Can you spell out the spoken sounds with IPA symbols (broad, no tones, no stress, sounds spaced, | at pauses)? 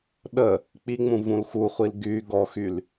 ɗ ə | k͡p i ŋ͡m ũ v ũ l x u χʷ i l ɡ y ɡ ɔ x y l